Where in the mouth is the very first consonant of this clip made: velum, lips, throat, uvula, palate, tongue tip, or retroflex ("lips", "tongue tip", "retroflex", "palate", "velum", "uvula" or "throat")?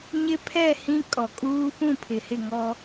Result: palate